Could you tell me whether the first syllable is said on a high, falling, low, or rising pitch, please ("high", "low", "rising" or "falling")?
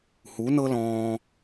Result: rising